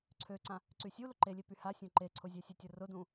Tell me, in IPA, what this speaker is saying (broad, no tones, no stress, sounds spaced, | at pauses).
ǀʰ ø ǀ ã | ǀ y sʲ u l ʊ ǃ e lʲ e p y h a sʲ õ ǃ e ǀʰ ʊ zʲ ɛ sʲ e tʲ ʊ r ʊ d ũ